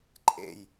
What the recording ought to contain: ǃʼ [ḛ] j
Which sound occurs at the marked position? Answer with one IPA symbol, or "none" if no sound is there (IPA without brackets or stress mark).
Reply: ḛ